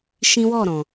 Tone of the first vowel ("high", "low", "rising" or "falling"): high